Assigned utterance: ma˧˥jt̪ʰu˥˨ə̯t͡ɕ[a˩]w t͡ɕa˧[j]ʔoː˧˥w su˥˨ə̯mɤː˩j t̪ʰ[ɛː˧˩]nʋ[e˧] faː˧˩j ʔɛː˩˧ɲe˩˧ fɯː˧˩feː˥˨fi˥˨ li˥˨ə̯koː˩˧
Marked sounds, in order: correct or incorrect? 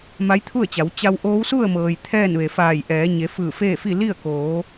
incorrect: a˩˧, incorrect: w, incorrect: ɛː˥˨, incorrect: e˩

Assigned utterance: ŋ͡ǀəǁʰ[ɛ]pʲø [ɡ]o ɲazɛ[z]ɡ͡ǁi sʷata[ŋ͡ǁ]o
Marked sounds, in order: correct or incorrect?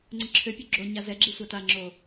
incorrect: ø, incorrect: ɡ͡ǁ, incorrect: none, correct

